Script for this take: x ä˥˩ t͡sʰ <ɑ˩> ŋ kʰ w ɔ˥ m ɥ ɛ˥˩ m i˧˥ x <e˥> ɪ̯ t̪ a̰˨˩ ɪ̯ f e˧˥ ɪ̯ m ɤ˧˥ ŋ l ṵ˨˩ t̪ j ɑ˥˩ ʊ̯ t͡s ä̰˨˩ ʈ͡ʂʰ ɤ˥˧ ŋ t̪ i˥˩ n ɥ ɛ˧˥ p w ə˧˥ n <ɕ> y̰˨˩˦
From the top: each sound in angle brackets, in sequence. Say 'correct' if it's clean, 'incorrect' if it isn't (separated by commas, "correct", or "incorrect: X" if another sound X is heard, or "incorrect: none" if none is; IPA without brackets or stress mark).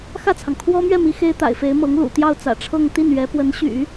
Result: correct, correct, correct